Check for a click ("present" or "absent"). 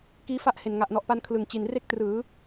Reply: absent